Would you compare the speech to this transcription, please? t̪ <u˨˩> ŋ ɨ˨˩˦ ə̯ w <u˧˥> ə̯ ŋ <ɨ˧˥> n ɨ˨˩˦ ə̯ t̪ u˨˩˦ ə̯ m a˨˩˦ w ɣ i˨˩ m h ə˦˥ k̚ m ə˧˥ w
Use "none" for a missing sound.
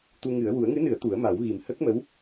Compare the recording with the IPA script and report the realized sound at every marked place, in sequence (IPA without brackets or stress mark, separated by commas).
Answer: u˧, u˨˩˦, ɨ˧˥